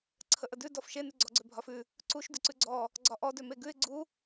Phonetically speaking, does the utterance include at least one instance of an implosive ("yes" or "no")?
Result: no